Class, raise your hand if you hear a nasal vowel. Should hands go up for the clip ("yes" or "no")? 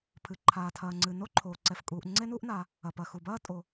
no